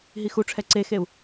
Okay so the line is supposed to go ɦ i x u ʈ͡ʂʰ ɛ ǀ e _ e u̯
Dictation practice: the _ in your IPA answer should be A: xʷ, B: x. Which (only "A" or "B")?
B